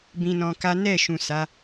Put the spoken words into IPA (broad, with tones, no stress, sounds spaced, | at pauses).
b ĩ˧ n ɔ̃˧ k a˦ n ɛ˦˨ ʃ ũ˨ s a˨˦